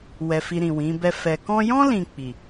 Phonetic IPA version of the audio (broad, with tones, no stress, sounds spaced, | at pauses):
w ɛ˨ f i˨ ɾ ĩ˨ w ĩ˨˦ b ɛ˦ f ɛ˧ k ɔ̃˧ j ɔ̃˦ l ĩ˧ k͡p i˨